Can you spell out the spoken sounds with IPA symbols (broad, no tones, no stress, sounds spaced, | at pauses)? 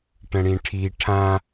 ʈ ə̃ ɽ ĩ ʈʰ i ʈʰ ã